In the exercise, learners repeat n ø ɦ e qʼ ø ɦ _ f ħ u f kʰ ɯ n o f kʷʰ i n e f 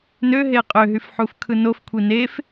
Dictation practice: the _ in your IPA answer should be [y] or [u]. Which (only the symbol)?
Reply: y